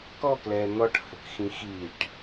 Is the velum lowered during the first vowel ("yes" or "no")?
no